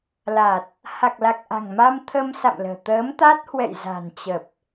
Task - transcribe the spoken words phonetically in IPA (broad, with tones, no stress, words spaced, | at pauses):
la˨˩t̚ | ha˨˩k̚la˨˩k̚ʔa̤˨˩ŋma˧m t̪ʰə˧msa̰˧˨mlə̤ː˨˩ t̪əː˨˦mt̪a˦˥t̚ hwɛ̰˧˨jza̤˨˩nt͡ɕə˨˩p̚